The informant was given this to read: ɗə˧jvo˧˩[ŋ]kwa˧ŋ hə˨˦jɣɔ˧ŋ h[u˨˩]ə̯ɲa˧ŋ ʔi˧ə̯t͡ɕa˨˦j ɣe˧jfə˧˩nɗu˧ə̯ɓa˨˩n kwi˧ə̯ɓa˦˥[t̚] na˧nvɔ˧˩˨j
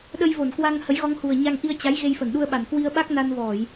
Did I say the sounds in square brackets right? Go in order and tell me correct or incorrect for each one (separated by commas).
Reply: incorrect, correct, incorrect